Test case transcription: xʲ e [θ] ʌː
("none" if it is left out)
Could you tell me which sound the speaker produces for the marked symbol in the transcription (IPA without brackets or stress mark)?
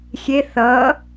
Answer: θ